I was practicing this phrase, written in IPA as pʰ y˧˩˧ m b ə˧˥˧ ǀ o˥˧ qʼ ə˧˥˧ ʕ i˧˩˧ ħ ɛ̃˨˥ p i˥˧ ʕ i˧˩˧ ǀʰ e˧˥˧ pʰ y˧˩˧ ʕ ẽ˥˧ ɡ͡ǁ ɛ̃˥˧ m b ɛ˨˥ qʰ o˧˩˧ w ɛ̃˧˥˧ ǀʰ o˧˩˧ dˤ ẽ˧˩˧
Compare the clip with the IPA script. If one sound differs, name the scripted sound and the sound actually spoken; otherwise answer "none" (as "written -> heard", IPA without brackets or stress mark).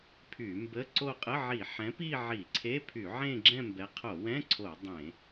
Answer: none